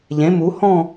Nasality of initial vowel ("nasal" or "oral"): nasal